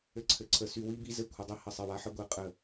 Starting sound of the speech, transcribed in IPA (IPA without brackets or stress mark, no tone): ɘ